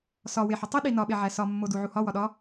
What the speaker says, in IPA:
sɒ weħɒtˤi ɗinɒ ɓeʕæsɒ mːoduʕuhɒ wɒɗɒ

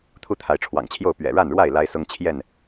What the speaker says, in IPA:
t̪ʰu˦t̪ʰa˨˦ɪ̯ʈ͡ʂʰwɑ̰˨˩ŋt͡ɕʰjo˥˨ʊ̯ pɥɛ̰˨˩ɻa˥˨nɻwa˥˨ɪ̯ la˦ɪ̯sʊ˦ŋ t͡ɕʰjɛ˥˨n

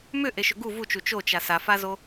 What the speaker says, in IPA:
mʏʔeʃʏ ɡu vut͡ʃu t͡ʃot͡ʃa safazo

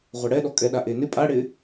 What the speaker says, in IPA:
ʁʷaɽɛɗɔ kʼɛɗaʔe nɪ pʼaɽɪ

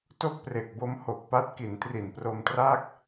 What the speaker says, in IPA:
to˥˩k̚pre˨˩k̚bo˦˥m ho˨˩k̚pa˦˥t̚ki˩˦n tri˨˩npro˧mtraː˥˩k̚

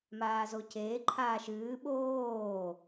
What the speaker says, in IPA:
maːzoceː ǃʰaːʃɨː ɓoː

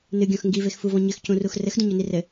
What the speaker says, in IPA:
nɨɡʲɔ̃x ŋɡivexfuvɔ̃ ɲɘxcũrux rɘxdũɲoni rɘ

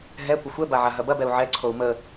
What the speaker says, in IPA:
ɦɛ kʷəxʷɛba ʕaɦɐbɐbɛu̯ ʕɛǀʰou̯ mə

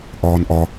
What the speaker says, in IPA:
ʔɒːnʔɒ

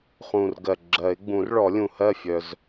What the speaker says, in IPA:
χũ˨˩rɡɜ˨˩ ɡ͡ǁɜ˨˩˦ɪ̯ ɡ͡bũ˨˩˦rɭɔ˨˩˦lʲũ˨˩hɜ˥˩ fʲœ˨˩z

